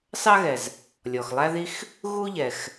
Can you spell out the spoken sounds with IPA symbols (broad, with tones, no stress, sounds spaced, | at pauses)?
s ɑ˥ ɣ ɛ˩ z | lʲ ɔ˩ x lˠ æ˥ ð i˥ x | ɣ u˥ ʎ ɛ˩ x